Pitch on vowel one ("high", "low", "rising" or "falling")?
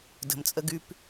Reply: low